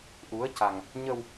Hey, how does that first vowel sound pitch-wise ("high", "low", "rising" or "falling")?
rising